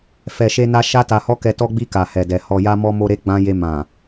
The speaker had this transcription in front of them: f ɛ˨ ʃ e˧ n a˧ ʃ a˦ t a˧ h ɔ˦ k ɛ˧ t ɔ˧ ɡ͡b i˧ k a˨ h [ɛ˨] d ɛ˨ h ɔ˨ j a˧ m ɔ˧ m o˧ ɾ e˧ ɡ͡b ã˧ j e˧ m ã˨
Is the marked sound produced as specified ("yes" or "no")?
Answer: yes